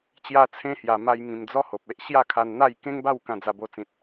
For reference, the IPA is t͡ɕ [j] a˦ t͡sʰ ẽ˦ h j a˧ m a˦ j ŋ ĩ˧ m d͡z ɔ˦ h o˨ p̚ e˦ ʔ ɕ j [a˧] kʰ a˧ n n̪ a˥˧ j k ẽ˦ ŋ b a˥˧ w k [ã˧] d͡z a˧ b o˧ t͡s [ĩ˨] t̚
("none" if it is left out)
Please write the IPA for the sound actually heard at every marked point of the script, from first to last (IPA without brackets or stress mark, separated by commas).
j, a˥˧, ã˧, ĩ˨